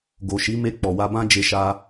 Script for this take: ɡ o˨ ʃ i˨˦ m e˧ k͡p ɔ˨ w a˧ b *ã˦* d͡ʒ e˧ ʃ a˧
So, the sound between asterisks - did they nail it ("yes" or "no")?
yes